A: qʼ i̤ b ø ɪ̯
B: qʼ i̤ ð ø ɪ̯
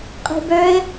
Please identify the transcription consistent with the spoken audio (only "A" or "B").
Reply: A